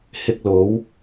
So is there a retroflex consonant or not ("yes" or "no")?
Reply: no